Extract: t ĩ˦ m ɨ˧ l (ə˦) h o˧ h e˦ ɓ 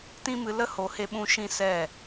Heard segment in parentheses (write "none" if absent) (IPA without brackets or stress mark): ə˦